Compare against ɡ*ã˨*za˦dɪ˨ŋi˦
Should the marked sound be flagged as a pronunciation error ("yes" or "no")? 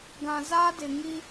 no